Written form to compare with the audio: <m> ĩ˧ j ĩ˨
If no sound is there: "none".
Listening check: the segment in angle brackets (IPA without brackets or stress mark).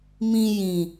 m